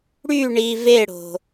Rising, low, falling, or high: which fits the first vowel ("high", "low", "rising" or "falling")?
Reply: falling